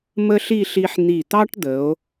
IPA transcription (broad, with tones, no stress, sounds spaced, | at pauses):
m ə˥ ɬ i˥˧ ɬ i˧ ħ n̪ i˧˩ t̪ ɑ˥ ʈ d̪ ə˩˧ o̯